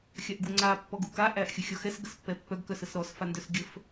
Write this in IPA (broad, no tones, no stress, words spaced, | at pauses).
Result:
xʲaʔɡwəŋ͡ǀa pːɔɡuka ʔæʔxʲəxʲɔxɛs ɡəspːɛpːœɡ kœsəsɾɔs fandœsɡʲəf